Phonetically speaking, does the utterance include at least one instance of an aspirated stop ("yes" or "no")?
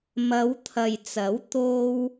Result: yes